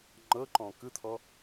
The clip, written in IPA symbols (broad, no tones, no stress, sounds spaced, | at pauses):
ŋ͡ǃ ɤ ǃ ɔ̃ k ɯ t̪ʰ ɔ